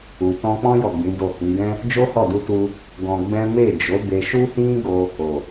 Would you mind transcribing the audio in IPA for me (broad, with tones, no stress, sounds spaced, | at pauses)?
u˨ t ɔ̃˧ k͡p ɔ̃˦ j ɔ˦˨ ɡ͡b ĩ˨˦ d o˦˨ h ĩ˨˦ ɡ ɛ̃˦ | d͡ʒ o˦ h ɔ˦˨ d u˧ t u˧ | ɡ ɔ̃˧ ɡ͡b ɛ̃˦ m e˦˨ d͡ʒ o˨˦ b e˧ ʃ u˦ h ĩ˦ ɡ o˧ | o˨